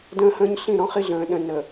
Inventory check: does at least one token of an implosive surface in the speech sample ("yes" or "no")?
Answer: yes